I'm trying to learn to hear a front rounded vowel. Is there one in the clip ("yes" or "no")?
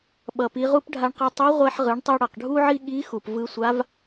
no